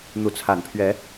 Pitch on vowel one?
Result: rising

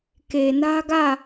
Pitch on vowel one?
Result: low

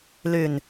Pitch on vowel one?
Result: low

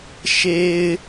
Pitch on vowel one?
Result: low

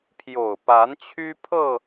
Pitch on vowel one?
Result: low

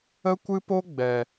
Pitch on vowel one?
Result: high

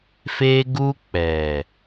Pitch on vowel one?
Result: high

